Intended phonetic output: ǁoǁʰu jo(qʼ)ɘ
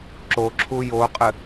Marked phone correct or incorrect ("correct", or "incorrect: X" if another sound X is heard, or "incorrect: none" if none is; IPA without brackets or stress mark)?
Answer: correct